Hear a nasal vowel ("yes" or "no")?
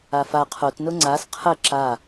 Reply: no